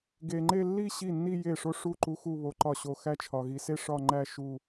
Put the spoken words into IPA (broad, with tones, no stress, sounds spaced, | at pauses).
ɡ e˨ ŋ͡ǃ e˥˧ lː i˥˧ ɕ i˥˩ nː i˥˧ j e˥˩ ʂ o˥˧ ʂ u˥˩ ǃ u˧˥ x u˥˧ β o˧˥ ǃ ɒ˥˩ ɕ o˥˩ x æ˥˧ t͡ʃʰ ɒ˨ ɣ i˨ s e˥˧ ʂ ɒ˥˧ ŋ͡ǃ æ˥˧ ʃ u˥˧